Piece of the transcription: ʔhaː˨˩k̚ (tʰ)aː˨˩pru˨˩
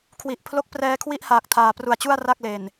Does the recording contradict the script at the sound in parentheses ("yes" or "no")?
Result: no